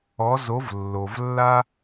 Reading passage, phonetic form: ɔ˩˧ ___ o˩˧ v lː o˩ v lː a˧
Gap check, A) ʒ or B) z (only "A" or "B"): B